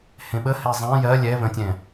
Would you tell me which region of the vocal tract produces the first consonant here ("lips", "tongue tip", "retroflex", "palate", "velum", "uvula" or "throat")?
throat